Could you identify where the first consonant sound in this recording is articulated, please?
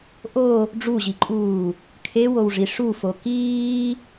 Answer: glottal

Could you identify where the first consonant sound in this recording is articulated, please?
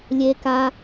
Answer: alveolar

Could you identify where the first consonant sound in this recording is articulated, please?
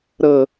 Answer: alveolar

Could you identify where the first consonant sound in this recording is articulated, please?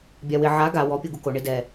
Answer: labial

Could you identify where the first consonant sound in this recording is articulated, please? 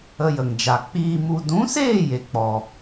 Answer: palatal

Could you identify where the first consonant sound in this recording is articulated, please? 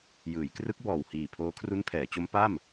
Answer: palatal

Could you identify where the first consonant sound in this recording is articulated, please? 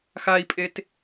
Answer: velar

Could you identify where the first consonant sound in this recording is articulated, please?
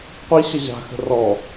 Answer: uvular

